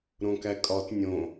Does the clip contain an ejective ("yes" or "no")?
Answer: yes